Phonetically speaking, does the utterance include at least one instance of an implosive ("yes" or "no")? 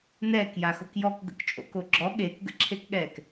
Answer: yes